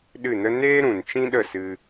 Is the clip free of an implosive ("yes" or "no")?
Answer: no